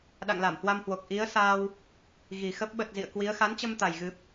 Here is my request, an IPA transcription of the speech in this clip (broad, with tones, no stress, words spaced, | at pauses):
ɗa̰˧˨ŋla˧˩mhwa˧mhwo˨˩k̚ ʔi˨˦ə̯saː˧w | ɣi˨˩xə˦˥p̚ ɓə˨˩t̚ zḭ˧˨ə̯kwi˨˦ə̯ xa˨˦nt͡ɕə˧mt̪a˨˩j ɣɨ˨˩p̚